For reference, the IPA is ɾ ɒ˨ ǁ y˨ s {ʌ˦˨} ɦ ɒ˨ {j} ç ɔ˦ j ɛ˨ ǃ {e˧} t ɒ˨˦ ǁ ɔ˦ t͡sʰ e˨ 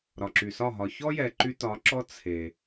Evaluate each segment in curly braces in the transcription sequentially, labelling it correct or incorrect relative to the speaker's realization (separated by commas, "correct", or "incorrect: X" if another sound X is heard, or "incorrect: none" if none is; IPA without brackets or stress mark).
incorrect: ɒ˦˨, incorrect: none, incorrect: y˧